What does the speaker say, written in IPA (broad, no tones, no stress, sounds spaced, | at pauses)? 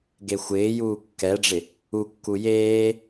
ɡ e xʷ ɪː j uː kː ɛ ɖ͡ʐ ɪ | u kː u j eː